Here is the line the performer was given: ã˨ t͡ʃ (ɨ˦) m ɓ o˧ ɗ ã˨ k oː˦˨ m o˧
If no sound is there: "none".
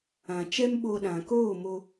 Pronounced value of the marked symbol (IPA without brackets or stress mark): ɛ˦